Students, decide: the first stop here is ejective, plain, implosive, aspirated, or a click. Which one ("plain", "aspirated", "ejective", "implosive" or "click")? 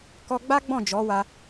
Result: plain